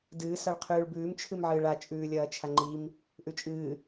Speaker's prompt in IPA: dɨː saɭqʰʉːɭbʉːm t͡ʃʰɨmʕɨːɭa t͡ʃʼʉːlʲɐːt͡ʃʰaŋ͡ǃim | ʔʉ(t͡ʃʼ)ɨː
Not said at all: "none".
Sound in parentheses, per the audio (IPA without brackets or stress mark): t͡ʃʼ